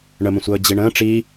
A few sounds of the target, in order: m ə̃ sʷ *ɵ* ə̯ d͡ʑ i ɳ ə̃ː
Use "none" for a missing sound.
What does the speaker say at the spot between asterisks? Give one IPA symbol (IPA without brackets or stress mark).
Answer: ɤ